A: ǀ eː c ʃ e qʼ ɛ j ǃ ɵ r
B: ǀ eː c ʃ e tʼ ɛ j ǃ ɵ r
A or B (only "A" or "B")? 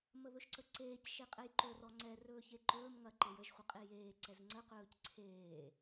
A